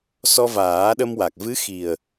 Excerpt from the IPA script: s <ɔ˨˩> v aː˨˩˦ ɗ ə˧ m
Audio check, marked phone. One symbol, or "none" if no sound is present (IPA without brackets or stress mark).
ɔ˧